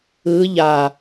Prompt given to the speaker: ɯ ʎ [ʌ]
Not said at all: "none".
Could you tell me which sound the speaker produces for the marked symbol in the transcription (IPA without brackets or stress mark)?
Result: a